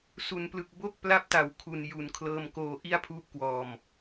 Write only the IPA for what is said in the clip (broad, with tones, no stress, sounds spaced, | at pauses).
s u˩˦ n p l ɯ˨˩ k̚ b o˥˩ k̚ p l a˦˥ p̚ t a˨˩ w kʰ u˨˩ n j u˨˩ n kʰ l ɤː˧ m k oː˧ ʔ i˥˩ a̯ pʰ uː˦˥ p̚ k w ɔː˨˩ m